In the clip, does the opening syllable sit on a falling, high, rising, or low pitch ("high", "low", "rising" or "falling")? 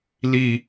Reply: low